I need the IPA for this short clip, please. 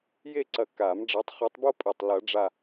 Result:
je˥˧ǀɐ˧˩ka˨˩˦m ɖ͡ʐɐ˨˦tˤχu˨˦tˤbo˥ pʼɛ˧˩tˤ lɐ˨˩˦ɖ͡ʐa˧˩

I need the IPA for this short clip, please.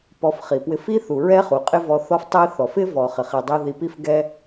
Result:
pɔ˧fχi˩pwɪ˧f i˥θu˩ ɹɛ˥χu˩ qʼɪ˥vɔ˧θɔ˥f tˤi˥ θɔ˩f ɪ˥ vɔ˩χɪ˩χi˩dˤi˧ ði˧pi˥fɡɛ˥

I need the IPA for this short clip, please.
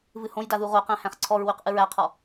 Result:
vɨhõjda ðuʁoqæ̃ hæ̃χǀʰɔɹwyq ʔɨɹæqʰɔ

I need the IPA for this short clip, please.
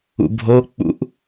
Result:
ṵbʱok͡pṵʔ

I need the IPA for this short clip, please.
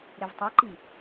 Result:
ɾevtˤeǃi

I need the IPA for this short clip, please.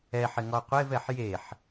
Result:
ɛħɪ ŋɔqʷevɛħ jeħ

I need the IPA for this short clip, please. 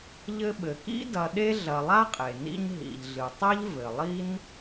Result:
ʎɘ˦ ɓɘ˩kḭ˥ dɐ˨ɗe˦ ɮɐ˨ lˠa˥qʼe˩nḭ˦ɲ ɦḭ˩ʎɮɨ˩tˤɛ˥ʎ vɘ˩ lˠi˥n

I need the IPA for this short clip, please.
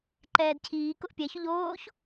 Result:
ǃɛːdcʰiː kʊʔpʲɛ çʊʎoːç

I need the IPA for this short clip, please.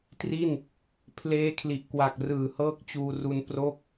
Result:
tri˥˩n | pʰleː˦˥kʰli˨˩ʔkwa˨˩k̚ rɯː˨˩hɤː˥˩k̚ t͡ɕuː˧ru˧n pro˦˥k̚

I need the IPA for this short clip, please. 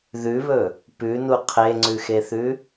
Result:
ðʉβɵ | pʉnu qʰeŋ͡ǀʉxeθʉ

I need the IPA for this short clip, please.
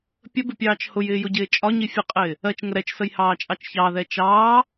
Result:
pʲəbɪpʲɑːt͡ʃ hʊjɪːjʊɟɪː t͡ʃʼɒɲi fʲəqʼɪː | ɜt͡ʃŋə ɾɛt͡ʃsəjhɑːt͡ʃʼɑt͡ʃ çɑðɛ t͡ʃɑː

